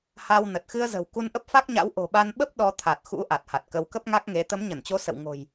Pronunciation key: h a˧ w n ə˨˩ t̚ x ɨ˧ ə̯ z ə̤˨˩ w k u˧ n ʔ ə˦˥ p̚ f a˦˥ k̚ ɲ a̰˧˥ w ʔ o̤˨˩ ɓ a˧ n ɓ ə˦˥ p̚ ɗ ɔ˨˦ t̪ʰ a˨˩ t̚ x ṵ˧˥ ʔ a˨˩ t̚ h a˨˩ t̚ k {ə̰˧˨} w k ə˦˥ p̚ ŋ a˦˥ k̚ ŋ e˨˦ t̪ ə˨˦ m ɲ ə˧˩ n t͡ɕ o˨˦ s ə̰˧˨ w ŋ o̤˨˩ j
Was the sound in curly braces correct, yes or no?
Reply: no